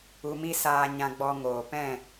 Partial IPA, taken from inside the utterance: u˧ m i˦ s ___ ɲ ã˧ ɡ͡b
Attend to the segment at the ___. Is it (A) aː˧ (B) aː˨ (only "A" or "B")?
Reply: A